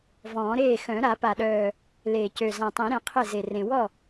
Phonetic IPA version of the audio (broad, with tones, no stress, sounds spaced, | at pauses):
v ɔ̃ː˨˩˦ ɾ eː˥˩ x œ̃˨˩˦ ɾ a˨˩˦ p a˨˩ ɗ œː˨˩ | l e˨˩ c ø˨˩ z ã˨˩ tˤ ẽ˨˩˦ ɾ ẽ˨˩˦ qʰ e˥˩ z e˨˩ r ẽ˨˩ w ɔ˥˩